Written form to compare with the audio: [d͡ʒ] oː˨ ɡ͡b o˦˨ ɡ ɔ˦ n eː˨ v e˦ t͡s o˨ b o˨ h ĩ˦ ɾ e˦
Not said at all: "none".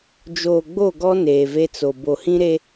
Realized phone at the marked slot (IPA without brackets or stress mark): d͡ʒ